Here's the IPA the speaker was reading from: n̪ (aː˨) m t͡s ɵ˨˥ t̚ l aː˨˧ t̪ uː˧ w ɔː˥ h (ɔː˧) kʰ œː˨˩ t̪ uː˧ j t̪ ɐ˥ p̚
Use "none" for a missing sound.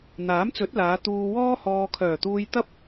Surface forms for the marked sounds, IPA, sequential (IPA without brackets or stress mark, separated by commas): aː˨˥, ɔː˧